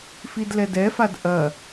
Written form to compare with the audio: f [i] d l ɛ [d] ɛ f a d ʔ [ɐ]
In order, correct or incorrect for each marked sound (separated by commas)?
correct, correct, correct